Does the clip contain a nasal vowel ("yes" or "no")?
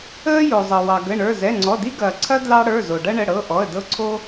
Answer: no